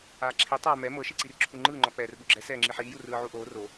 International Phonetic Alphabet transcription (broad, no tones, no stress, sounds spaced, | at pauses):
aː ǁʰ i tˤ aː m ɛ m ɤ ʃ i ǀ i r ǁʰ u ŋ͡ǃ ɯː ŋ͡ǃ ɔ k͡p ɛː r ɓ u ɡ͡ǁ ɛ s ɛː ŋ͡ǁ i ħ iː j u r ɯː ʕ u ʔ oː r o